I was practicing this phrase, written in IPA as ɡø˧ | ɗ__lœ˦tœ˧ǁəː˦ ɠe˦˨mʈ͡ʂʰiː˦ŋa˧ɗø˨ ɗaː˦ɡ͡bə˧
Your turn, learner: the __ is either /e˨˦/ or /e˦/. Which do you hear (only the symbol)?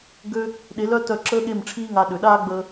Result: e˨˦